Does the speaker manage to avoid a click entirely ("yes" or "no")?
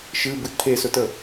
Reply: yes